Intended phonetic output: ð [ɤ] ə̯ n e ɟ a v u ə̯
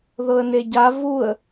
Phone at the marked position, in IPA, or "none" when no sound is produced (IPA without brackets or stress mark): ɤ